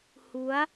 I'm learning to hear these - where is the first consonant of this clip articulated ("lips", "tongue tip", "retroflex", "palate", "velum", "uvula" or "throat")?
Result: throat